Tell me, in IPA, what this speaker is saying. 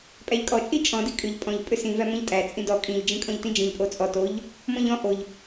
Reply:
pʼæʎkʼɔt͡ʃʼi t͡ʃʼɔ̃di kʼʏʎ pʼɔ̃ʎ pʼʏsĩvæ mɔ̃ʎtʼæ t͡sʼĩdɔ kʼĩʎd͡ʒĩ kʼɔ̃ʎtĩd͡ʒĩʎ pʼot͡sʼɔ toʎ | mɔ̃ʎɔ̃ ʔoʎ

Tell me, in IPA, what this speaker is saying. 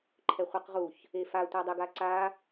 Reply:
ǃʰɛχʷɛqʁuç | efa tʷɑdˤɪɡ aǀa

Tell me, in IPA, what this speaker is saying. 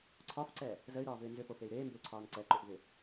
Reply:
ǀʰɒfǀɛ | zəy̯ɾɒːvʏː nzʏfofey̯ ɾeːmbʏːǀʰɒːn ǀɛǃʏʔvʏ

